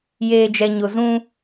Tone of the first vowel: low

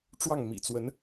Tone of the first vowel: falling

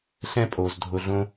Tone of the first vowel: high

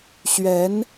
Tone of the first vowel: rising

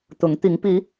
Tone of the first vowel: rising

